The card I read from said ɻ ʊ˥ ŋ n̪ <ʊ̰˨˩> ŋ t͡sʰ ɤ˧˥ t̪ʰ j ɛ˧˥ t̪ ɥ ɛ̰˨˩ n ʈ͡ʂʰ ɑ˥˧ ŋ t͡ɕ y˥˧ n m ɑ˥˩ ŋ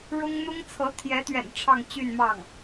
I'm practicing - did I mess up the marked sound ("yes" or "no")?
yes